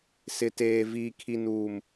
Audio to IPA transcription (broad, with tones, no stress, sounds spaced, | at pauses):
s ɪ˨ t eː˨ v iː˨ kʰ i˨ n uː˨ m